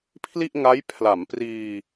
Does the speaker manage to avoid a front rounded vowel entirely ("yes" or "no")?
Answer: yes